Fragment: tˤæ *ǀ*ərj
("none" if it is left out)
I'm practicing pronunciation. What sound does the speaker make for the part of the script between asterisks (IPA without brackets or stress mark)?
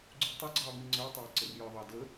ǀ